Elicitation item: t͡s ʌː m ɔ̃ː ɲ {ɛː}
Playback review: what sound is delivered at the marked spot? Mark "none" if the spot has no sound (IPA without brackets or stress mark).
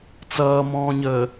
əː